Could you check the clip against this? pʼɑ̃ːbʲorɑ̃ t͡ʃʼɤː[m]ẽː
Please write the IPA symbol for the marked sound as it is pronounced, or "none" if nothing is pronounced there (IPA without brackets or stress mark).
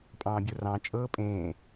pʼ